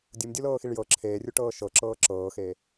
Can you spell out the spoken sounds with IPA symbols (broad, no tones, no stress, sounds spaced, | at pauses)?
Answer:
dʲ u m dʲ u l ɤː x i ɭ j ɤ ǁʰ eː rʲ u ʈ ɤː ʃ ɤ ǁ ɤː ǁ ɤː x eː